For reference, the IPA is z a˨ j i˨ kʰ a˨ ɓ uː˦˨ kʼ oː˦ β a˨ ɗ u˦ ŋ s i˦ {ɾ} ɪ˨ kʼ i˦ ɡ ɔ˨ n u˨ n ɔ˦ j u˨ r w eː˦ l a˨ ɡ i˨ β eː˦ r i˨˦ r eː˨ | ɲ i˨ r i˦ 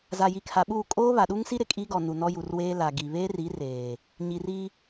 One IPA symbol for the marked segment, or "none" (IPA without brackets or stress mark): ɾ